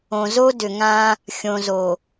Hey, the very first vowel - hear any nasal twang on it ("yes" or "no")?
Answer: yes